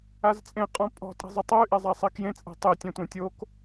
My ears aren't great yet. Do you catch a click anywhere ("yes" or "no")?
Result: no